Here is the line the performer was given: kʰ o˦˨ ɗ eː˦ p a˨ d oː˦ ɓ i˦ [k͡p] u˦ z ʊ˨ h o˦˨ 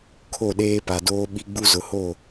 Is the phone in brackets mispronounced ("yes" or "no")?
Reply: yes